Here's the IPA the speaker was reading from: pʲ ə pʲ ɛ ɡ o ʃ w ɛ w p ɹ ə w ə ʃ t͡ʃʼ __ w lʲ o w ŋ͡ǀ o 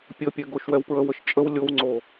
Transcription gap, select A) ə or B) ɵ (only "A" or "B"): A